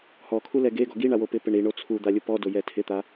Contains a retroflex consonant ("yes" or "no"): yes